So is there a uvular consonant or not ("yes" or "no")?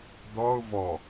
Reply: no